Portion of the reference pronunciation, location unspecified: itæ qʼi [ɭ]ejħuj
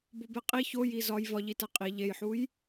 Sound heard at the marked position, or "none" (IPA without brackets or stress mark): ʎ